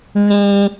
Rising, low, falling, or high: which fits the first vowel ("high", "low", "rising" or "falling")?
low